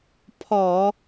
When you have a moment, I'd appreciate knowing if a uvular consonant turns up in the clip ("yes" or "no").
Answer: no